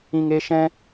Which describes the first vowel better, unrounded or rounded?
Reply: unrounded